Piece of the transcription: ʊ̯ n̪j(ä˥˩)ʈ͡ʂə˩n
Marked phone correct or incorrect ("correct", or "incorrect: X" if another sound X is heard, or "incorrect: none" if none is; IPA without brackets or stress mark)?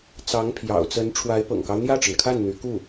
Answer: correct